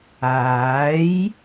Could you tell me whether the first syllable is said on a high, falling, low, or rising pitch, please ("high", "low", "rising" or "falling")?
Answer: rising